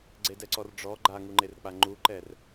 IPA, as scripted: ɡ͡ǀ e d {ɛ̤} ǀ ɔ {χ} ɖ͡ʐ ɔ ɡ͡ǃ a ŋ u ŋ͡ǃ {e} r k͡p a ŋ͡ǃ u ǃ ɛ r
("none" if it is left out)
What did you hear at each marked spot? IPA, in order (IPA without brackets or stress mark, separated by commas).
ɛ, r, e